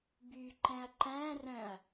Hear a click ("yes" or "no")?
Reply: yes